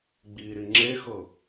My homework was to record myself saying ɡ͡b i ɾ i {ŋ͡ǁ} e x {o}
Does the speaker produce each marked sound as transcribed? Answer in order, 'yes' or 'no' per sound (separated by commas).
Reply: yes, no